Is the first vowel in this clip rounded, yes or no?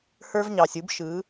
no